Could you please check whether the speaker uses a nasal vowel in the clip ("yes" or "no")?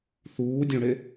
yes